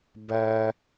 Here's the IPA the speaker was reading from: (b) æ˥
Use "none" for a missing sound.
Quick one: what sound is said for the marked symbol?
b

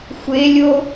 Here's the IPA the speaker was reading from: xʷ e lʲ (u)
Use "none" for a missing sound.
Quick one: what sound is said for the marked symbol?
o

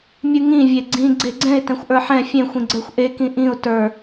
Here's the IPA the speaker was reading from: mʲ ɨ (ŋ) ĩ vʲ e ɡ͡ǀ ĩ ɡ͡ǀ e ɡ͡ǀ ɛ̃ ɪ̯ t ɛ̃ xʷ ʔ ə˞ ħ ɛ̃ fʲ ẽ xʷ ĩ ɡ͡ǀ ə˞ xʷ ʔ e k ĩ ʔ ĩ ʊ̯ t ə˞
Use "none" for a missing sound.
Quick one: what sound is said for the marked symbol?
ŋ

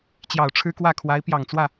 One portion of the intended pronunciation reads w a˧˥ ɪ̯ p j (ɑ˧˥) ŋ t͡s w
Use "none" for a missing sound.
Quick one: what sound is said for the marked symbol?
ɑ˨˩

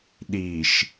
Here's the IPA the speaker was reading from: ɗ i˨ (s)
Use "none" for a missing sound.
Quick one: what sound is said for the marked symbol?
ʃ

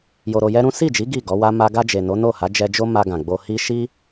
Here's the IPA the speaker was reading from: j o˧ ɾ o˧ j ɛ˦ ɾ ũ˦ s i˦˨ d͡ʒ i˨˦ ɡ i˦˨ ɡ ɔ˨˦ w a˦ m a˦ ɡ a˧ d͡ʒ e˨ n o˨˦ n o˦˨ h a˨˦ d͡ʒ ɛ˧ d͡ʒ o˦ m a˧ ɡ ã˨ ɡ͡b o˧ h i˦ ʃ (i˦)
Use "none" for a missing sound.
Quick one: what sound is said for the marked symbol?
i˦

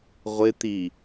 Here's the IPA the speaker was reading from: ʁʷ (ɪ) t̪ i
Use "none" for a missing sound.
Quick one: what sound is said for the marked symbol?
ɪ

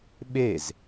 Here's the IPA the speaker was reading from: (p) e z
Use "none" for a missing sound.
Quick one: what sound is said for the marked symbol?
ɓ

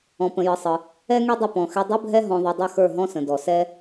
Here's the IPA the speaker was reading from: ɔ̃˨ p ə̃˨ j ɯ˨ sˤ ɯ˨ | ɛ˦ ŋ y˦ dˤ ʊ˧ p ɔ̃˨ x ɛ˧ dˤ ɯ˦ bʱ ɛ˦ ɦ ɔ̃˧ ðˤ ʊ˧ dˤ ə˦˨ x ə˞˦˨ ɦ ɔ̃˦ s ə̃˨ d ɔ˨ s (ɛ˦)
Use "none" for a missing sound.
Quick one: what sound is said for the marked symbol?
ɛ˦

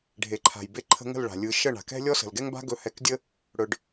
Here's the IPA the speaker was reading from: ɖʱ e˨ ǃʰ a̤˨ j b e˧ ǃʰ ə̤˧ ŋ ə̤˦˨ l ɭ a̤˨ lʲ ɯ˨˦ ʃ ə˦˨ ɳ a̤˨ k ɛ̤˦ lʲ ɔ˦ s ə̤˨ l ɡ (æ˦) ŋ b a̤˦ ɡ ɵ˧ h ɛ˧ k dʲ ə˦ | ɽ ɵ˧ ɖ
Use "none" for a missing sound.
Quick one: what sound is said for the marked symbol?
ɛ˦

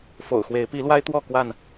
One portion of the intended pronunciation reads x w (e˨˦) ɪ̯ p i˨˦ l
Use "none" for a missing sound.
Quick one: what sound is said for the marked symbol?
e˨˦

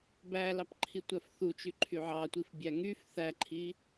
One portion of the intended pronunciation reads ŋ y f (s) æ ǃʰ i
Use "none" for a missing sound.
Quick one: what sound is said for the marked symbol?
θ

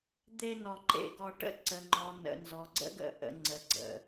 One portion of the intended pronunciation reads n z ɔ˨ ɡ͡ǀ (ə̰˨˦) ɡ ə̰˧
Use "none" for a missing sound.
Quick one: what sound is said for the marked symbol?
ə̰˦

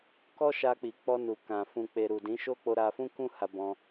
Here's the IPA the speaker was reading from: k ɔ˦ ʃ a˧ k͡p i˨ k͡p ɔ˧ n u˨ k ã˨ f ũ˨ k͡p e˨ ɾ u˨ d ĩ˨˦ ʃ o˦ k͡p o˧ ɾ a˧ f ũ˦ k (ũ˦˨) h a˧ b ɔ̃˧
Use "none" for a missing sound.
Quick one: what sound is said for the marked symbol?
ũ˦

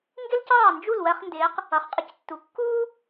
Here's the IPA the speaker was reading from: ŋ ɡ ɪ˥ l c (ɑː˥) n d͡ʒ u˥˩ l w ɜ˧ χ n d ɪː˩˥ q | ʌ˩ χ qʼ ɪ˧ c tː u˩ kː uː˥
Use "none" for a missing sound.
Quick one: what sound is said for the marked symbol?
ɑː˥˩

